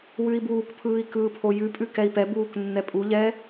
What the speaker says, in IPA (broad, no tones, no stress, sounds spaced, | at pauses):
w ʉ i̯ b uː k pʰ ɯː i̯ k ɯː pʰ o j ʉ pʼ ʉ k ɛ i̯ p ɛ b uː k nː ɛ pʼ u ʎ ɛ